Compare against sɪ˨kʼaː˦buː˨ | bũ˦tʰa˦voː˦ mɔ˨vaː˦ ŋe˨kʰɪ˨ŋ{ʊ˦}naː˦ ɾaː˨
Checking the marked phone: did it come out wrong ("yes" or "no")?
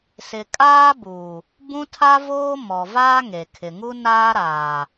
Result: yes